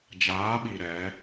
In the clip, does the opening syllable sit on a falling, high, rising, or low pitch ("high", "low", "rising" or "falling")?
rising